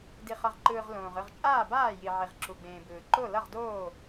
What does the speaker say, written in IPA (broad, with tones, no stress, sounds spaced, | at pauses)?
d i˨ χ ʌ˨ ʁ ǃ ɯː˨ ʁ l õː˨ ʁ ɯ˥˨ ʁ t͡ʃʼ aː˥˨ b aː˥˨ j i˨ ʕ i˨ ʁ ǁ u˨ ɡ͡b ẽː˨ b ɯː˨ ǃ o˥˨ l ʌ˥˨ ʁ d oː˥˨